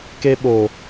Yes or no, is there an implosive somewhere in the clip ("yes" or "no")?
yes